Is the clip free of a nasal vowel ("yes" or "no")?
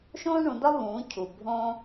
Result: no